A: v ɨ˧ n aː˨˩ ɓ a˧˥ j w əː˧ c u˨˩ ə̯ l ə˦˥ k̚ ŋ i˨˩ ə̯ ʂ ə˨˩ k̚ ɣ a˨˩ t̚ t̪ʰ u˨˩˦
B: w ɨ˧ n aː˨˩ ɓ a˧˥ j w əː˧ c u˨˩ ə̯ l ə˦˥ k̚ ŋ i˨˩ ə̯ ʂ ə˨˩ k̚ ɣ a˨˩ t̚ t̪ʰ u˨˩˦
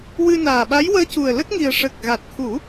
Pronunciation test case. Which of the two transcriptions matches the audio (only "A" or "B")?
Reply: B